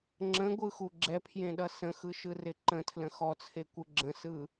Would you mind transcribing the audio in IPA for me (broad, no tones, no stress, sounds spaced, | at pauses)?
ŋ͡ǁ ə̃ ɡʷ ɯ x u ɡ͡ǁ ɛ pʰ j ẽ ɗ ʌ s ə̃ x ɯ ʃ ɯ r ɪ ǃ ə̃ tʰ l ə̃ x ɔ t͡sʰ e kʷ ɯ ɡ͡ǁ ə̃ s ɯ